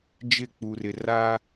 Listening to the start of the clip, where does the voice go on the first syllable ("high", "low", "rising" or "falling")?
falling